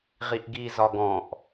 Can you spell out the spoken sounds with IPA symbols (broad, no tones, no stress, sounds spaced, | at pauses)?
ʁ i ʔ ɡ i z ɒ ɡ ɔ̃ ʔ